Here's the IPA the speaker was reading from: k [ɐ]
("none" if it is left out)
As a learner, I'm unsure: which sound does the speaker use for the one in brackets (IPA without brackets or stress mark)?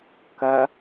ɐ